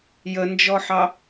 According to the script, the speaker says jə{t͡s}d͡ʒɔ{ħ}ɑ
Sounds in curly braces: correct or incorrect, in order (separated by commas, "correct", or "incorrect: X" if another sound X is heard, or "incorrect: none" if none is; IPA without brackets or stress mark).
incorrect: n, correct